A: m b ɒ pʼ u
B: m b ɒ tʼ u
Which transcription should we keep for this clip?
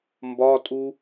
B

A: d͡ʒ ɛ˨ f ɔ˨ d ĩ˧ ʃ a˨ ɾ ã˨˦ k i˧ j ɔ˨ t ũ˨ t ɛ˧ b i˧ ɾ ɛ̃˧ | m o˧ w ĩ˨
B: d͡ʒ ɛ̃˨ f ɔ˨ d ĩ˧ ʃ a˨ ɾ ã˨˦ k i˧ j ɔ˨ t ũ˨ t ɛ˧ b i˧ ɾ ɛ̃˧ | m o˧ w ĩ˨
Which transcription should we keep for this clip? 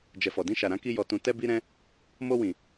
A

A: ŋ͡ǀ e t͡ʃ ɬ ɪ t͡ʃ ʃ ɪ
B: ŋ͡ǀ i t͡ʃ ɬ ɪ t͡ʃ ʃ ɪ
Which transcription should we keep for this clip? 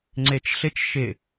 A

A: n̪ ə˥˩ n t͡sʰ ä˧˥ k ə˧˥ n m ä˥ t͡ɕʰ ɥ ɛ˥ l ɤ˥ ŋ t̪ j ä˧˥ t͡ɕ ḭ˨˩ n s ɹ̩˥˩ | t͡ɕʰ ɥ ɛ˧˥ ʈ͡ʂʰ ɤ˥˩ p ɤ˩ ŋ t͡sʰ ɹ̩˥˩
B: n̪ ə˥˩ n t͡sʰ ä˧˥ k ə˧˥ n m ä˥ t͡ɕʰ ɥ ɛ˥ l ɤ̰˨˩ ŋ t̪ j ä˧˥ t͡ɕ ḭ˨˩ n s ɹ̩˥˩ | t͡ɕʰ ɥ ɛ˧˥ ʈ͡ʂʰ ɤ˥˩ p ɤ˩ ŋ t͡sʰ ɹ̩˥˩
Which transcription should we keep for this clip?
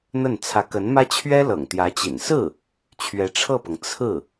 B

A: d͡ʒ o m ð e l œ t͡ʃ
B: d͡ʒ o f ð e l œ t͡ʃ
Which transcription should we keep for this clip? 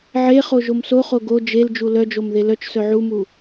A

